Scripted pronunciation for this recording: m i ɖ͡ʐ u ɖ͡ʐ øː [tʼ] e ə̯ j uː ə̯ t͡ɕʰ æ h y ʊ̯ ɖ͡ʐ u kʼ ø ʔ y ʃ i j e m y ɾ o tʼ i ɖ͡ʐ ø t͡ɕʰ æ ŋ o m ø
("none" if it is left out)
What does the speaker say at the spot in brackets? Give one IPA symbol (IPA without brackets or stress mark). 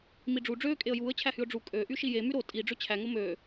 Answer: kʼ